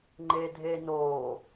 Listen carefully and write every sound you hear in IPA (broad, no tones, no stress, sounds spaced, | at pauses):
ŋ͡ǃ eː dʱ eː n oː